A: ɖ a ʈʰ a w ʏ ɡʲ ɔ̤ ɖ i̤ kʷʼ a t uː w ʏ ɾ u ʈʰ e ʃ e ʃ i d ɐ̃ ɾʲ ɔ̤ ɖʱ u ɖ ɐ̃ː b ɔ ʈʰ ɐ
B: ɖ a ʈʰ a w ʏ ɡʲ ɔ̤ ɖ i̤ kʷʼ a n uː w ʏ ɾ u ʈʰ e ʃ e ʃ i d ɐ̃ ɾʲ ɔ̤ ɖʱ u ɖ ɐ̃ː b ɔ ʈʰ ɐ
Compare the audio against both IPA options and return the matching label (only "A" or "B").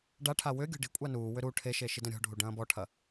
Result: B